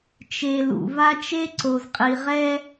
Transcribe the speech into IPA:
t͡ʃ e˨ l ṵ˨ v a˦ t͡ʃ e˦ ǀ o˨ z qʼ i˨ ʁ ɛ˦

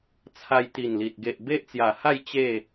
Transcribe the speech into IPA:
t͡sʰ a˧ j t̪ i˨˩ n l i˨ t̚ ɡ e˨ ʔ b e˦ ʔ t͡s j a˨˩ h a˥˧ j t͡ɕ e˥˧

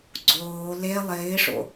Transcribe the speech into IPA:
ɡ͡ǀ oː l e lˠ ɪː ʂ o̰

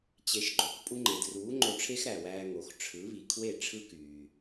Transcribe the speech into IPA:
t͡ɕ e˩˥ ʃ ɡ͡ǃ o˩ k pʼ u˧ ŋ͡ǃ e˩ d r uː˩˥ ŋ͡ǃ o˧ ʈ͡ʂʰ e˥ x ɾ æ˩ w æː˧ ŋ o˩ x ʈ͡ʂʰ ɯ˩˥ β i˩ kʰ w e˥˩ ʈ͡ʂʰ ɯ˥ k yː˩

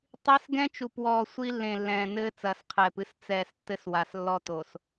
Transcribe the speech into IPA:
tˤ i˦ s ɡ ɛ̃˦ t͡ʃ u˨ p w ɔː˨ sʷ i˦ lː ẽ˨ lː ɛ̃ː˨ n ɘː˦ t͡s ɐː˨ s qʰ ɛː˨ p ɨ˦ s t͡s ɛː˨ s tː ɘ˦ s w a˨ s lː ɔ˦ t o˨ s

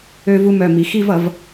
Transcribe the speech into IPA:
ø˧ v u˧ m œ˧˩ m i˩˧ x i˥˧ v ʌ˩˧ v

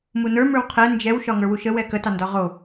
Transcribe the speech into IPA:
m u n ə˞ m ə˞ w qʰ ɛ n d͡ʒ ɛ w ʃ ɒ ŋ ə˞ w u ʃ ə w ɛ k ə t ɑ n d ɒ ʁ o

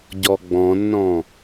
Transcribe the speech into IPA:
ɟ ɔ ɡ͡b ɔ̃ nː ɔ̃

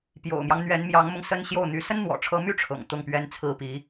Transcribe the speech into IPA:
p j o̰˨˩ ʊ̯ m j ɑ˦ ŋ n̪ ɥ ɛ˧˥ n m j ɑ˧˥ ŋ m ʊ˧ ŋ s ə˥ n ɕ j o˥˩ ʊ̯ n̪ y˧˥ s ə˥ n n̪ w ɔ̰˨˩ ʈ͡ʂʰ ɤ˧˥ m y˥˩ ʈ͡ʂʰ ɤ̰˨˩ ŋ t̪ ʊ˥˩ ŋ p ɥ ɛ˥ n t͡sʰ ɹ̩˥˩ p i˧˥

